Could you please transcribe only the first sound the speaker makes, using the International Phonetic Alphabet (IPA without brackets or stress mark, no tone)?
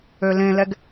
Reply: ø